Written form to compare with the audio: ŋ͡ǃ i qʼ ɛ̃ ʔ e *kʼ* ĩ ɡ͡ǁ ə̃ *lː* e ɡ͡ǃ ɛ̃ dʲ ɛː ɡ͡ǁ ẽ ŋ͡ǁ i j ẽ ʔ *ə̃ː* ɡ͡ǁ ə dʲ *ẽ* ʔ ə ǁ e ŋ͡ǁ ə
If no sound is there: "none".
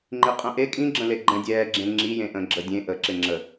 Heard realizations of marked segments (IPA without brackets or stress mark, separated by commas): kʼ, l, ə̃ː, ẽ